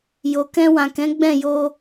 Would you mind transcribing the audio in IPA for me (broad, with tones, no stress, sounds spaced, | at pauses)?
j o˨ k ɛ̃˧ w ã˨ k ɛ̃˨˦ ɡ͡b ɛ̃˦˨ j o˧